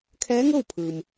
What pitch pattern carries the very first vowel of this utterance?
rising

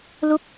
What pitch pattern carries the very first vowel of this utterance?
falling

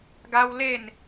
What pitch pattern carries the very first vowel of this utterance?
high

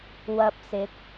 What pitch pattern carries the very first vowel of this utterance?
low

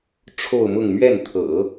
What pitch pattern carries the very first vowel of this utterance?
falling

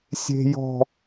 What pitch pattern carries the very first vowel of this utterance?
high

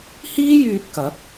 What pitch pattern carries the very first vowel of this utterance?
high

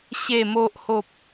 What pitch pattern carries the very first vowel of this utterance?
low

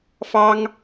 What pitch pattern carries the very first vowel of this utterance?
high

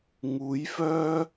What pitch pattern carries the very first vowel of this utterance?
rising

